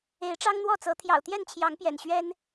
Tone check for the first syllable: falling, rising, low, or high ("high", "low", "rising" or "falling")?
rising